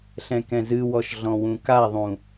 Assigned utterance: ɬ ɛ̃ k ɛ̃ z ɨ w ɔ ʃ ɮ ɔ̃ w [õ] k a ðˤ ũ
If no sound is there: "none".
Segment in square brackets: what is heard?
ũ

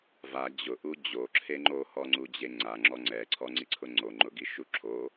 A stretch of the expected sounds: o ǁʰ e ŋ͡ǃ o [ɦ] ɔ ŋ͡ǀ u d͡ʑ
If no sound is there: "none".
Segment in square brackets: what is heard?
h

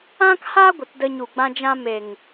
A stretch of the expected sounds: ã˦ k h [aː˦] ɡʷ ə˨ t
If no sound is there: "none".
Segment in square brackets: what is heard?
aː˦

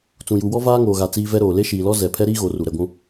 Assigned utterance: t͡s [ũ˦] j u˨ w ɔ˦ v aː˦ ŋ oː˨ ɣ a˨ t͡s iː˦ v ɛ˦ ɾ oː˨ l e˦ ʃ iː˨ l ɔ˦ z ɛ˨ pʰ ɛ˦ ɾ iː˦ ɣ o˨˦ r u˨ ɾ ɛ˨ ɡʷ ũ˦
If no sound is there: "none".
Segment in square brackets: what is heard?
ũ˨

